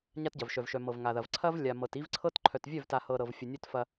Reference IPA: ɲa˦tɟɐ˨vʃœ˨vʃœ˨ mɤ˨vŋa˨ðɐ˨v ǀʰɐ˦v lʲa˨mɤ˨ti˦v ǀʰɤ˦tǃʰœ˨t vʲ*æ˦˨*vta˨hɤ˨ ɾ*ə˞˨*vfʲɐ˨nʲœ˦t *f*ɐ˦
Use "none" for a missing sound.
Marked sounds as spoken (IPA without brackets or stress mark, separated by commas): œ˦˨, ɤ˨, f